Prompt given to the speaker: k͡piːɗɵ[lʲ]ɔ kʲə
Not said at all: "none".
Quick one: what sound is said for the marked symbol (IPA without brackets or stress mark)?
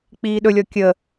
lʲ